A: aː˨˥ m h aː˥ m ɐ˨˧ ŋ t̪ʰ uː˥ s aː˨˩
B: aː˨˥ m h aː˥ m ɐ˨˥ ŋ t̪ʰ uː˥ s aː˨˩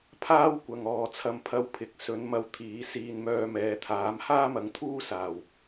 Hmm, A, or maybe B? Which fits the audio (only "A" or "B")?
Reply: A